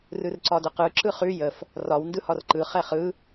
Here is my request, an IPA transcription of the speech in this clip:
r ɯ r ǀ ɒ d ə q ɯ ǁ ɯ χ ʉ j ə f | r ɒ w n d ɯ h ɒ r ǃ ɯ χ ɛ χ ɯ

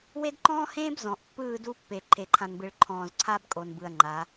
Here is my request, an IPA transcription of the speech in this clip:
w e˦ d ǃ ɔ̃ː˦ h ẽː˦ b z ɔ̃˨ ʔ pː ɯː˦˨ d u˦ pː e˨ ǃʰ e˨ ǃʰ ã˨ n b ɯ˨ ɭ ǃʰ ɔ̃ː˨ z ǀʰ a˦ b kʼ o˨ n b ɯ˨ ɐ̯ ŋ͡ǃ a˨˦

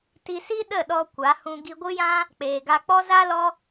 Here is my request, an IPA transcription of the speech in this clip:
t i˧ s i˦ ɗ ə˦˨ ɗ ɔ˧ kʷ a˨˦ h ũ˧ ɡ i˧ ɡʷ ɨ˦ j ã˦ | k͡p eː˨ ɡ a˧ k͡p ɔ˦ z a˦ l ɔ˦

